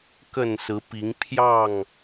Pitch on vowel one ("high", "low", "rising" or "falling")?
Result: falling